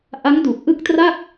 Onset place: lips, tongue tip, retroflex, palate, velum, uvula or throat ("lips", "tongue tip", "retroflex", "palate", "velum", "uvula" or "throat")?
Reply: throat